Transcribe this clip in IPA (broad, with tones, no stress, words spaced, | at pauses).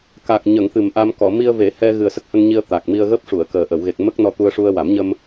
ka˨˩k̚ɲə˨˩˨ŋ t̪ɨ˨˩mʔa˧mkɔ˨˩˨ mi˧ə̯ve˨˩˦ hɛ˧ ɣɨ˨˩ə̯sə˦˥k̚hə˧ŋɲi˧ə̯ t̪a˨˩k̚mi˧ə̯ɣəː˦˥p̚ ʂu˨˩˨ə̯kəː˨˩ ʔə˨˩˨wɣe˨˩k̚ mə˦˥k̚ nɔ˧t̪u˧ə̯ʂu˧ə̯ wa˨˩˦mɲə˧m